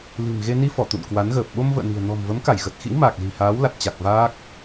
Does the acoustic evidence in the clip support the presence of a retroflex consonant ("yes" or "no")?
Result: no